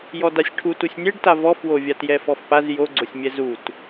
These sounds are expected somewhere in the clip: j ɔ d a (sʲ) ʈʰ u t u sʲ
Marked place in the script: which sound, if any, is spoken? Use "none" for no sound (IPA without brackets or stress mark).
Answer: sʲ